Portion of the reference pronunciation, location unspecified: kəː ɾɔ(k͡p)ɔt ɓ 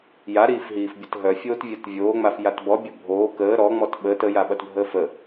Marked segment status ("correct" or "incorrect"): incorrect